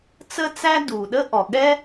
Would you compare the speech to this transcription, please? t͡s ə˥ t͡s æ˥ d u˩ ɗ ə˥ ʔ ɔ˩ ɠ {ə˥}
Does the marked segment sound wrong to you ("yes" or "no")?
yes